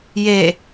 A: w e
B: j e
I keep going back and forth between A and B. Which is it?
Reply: B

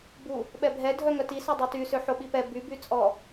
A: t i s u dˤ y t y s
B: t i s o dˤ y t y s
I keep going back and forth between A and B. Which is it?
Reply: B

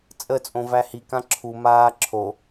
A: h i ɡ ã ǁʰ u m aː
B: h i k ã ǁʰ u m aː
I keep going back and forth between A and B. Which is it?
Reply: B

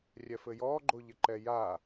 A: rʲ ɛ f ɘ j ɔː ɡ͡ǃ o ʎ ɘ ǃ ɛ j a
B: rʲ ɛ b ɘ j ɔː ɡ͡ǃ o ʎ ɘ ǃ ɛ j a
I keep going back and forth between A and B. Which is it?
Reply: A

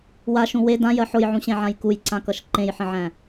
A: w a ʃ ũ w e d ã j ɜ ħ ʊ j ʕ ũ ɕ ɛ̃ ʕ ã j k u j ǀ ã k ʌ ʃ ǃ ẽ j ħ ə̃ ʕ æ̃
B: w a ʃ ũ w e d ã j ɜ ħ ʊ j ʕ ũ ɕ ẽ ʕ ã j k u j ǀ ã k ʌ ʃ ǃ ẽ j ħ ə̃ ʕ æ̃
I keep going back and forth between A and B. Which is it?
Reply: B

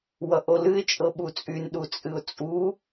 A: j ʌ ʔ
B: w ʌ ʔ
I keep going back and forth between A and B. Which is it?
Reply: B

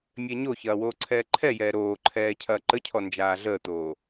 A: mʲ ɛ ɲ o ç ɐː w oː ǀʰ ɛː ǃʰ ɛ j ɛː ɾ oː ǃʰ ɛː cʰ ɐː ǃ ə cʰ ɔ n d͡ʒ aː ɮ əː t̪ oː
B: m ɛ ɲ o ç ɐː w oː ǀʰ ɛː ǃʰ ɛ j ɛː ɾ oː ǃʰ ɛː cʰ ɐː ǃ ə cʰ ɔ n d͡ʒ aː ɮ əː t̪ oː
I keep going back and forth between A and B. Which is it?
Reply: A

